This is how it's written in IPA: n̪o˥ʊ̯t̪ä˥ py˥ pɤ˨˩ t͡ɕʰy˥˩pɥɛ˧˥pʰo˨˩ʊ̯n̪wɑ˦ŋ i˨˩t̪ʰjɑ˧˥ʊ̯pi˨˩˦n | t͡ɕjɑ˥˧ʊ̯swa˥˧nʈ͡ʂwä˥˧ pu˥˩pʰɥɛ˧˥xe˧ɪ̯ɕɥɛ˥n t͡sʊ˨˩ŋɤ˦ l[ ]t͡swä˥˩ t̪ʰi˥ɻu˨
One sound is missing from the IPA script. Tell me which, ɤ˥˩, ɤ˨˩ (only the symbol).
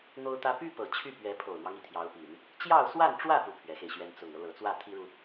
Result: ɤ˨˩